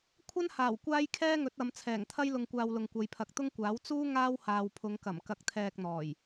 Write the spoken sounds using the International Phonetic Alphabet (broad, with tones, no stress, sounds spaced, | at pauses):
kʷʰ ɐ˥ n h aː˨˩ w kʷ aː˥ j kʰ ɛː˥ ŋ ɵ˨˥ t̚ ɐ˨˧ m t͡sʰ ɛː˨˩ ŋ t̪ʰ ɐ˥ j l ʊ˧ ŋ kʷ aː˧ w l ʊ˨ ŋ kʷ ɐ˨˧ j pʰ ɐ˨ k̚ t̪ ʊ˥ ŋ kʷ aː˨˥ w t͡s uː˥ ŋ aː˥ w h aː˨ w pʰ ʊ˨˧ ŋ k ɐ˨˩ m k ɐ˧ k̚ t̪ʰ ɛː˧ k̚ n̪ ɔː˨˩ j